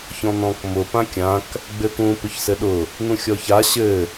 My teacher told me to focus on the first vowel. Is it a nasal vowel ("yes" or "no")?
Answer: yes